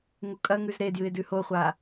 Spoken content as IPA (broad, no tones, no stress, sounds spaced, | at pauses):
ŋ u kʼ ɐ ŋ ʉ z ɾ e d j ɨ ɪ̯ d ʉ h o χʷ a